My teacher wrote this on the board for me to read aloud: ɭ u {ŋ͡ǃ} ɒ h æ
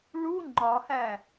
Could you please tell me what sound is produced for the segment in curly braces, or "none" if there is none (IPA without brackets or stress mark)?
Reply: ŋ͡ǃ